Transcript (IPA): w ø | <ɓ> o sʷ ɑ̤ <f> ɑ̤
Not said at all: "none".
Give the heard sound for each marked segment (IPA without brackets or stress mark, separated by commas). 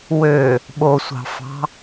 ɓ, f